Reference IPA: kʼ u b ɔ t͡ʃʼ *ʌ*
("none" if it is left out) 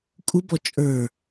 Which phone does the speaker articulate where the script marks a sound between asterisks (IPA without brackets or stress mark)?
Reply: ə˞